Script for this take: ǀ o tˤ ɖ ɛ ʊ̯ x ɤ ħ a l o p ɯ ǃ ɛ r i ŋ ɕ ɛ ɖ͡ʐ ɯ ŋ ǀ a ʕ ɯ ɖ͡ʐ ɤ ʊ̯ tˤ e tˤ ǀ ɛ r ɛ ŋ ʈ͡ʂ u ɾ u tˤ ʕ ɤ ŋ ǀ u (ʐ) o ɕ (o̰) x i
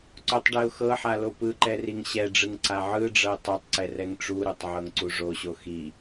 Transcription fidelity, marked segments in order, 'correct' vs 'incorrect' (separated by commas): correct, incorrect